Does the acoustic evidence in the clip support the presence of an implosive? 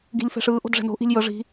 no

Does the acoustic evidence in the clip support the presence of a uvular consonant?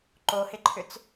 no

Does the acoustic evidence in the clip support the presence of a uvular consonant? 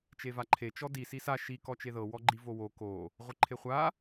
yes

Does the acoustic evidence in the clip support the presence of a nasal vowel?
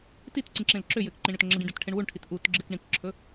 yes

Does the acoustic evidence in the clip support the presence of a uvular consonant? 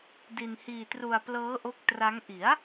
no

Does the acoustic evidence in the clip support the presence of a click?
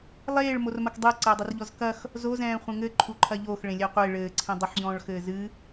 yes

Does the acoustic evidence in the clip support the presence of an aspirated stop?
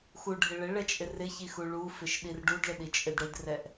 no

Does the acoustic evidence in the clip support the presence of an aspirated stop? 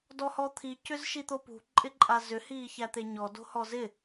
yes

